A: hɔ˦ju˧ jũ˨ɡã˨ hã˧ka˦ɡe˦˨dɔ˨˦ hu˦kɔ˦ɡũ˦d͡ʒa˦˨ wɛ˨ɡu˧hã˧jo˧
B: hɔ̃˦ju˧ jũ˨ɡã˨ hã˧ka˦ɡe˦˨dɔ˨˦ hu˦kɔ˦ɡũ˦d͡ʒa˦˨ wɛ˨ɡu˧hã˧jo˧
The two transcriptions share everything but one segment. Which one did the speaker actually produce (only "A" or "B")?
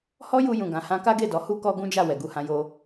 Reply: A